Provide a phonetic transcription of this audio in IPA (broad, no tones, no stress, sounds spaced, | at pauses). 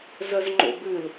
z œ z ŋ͡ǃ o̰ b ʉ l